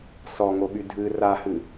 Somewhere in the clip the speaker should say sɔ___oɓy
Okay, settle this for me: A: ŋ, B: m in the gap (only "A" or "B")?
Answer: A